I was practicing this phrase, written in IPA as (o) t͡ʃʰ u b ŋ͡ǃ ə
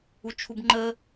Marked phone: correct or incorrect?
incorrect